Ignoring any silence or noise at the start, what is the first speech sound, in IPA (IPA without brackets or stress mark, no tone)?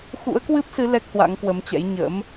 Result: x